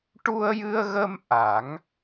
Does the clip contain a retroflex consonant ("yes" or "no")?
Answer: yes